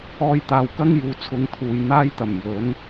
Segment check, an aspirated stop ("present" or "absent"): present